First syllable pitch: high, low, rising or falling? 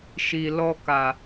low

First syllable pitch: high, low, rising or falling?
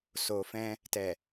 low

